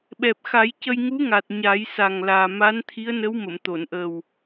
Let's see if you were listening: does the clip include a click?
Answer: no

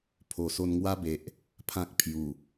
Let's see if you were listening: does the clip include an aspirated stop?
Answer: yes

